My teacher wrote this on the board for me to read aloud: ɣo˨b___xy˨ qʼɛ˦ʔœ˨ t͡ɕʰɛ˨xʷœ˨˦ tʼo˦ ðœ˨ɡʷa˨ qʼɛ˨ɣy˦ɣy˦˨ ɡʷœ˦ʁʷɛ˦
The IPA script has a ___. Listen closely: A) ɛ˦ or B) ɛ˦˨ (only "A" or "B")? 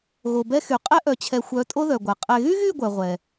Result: A